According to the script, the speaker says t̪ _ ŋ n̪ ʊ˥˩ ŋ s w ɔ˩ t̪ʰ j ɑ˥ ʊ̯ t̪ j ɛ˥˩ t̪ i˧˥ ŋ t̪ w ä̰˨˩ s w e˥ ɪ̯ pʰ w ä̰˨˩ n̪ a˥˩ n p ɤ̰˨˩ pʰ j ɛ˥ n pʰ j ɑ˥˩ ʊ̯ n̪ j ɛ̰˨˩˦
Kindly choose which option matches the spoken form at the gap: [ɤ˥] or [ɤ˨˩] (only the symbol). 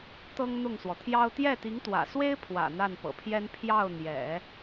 ɤ˥